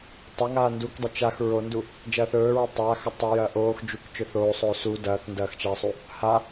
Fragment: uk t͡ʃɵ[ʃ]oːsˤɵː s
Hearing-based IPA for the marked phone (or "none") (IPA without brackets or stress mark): θ